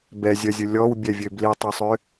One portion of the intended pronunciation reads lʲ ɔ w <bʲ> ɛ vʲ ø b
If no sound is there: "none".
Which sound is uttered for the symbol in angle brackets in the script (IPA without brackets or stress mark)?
bʲ